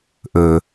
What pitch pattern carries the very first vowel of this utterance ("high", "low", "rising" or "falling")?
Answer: low